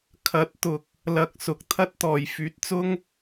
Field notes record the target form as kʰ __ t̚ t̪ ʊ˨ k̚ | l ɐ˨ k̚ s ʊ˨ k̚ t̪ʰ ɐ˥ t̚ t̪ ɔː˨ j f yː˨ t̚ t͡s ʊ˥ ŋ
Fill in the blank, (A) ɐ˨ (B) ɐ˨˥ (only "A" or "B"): B